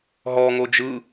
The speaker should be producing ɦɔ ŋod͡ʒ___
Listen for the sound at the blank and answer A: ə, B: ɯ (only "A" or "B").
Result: B